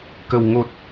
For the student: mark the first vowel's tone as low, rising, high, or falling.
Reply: low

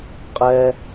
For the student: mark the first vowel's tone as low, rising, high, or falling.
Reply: low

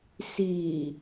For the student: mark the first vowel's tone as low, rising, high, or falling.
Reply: low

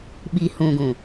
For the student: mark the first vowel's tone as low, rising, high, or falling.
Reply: low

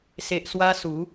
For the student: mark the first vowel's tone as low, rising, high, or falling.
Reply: low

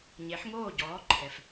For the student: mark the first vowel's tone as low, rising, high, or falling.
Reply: rising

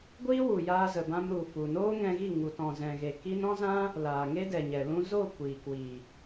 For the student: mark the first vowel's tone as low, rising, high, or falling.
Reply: high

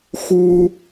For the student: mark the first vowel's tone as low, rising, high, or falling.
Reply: high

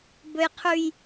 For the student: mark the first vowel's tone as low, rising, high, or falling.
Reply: low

